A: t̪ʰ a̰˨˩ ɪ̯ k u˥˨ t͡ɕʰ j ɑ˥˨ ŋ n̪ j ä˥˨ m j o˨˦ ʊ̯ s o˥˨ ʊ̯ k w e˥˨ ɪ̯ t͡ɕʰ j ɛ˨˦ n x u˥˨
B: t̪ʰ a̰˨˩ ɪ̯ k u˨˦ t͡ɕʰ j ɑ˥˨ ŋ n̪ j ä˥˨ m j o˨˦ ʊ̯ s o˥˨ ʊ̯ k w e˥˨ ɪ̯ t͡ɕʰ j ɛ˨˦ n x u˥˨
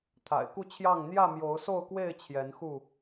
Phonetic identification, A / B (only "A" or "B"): A